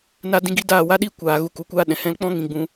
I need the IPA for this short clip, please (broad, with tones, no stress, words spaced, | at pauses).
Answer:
na˧dĩ˧ɡi˧ daː˦˨wa˦ɗiː˦ kʷaː˨ɣu˧ ku˧kʷaː˦ɗɛ̃˨ hɛ̃˧lk͡pɔ̃˦ ŋĩ˧ɡ͡bũ˧